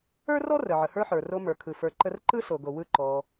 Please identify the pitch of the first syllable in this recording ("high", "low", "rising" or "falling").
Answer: high